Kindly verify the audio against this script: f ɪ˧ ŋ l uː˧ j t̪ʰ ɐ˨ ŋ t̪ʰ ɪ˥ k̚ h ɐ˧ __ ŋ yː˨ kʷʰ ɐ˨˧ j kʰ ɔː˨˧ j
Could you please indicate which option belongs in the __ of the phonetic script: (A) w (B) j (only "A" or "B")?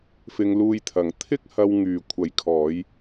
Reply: A